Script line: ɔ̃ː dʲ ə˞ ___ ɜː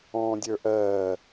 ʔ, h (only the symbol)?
ʔ